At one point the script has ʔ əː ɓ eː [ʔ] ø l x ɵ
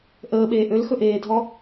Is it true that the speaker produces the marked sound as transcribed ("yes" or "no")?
yes